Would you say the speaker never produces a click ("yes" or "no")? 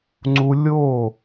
no